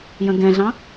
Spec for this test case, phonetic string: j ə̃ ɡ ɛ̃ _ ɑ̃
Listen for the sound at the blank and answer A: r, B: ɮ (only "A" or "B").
B